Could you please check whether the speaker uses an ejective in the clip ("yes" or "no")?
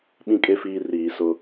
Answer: yes